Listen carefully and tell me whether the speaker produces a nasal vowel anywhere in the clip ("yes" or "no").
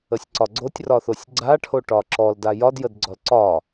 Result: no